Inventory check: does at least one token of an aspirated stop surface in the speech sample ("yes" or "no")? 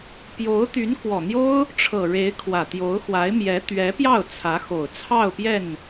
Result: yes